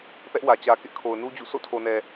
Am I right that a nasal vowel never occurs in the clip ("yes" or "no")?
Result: yes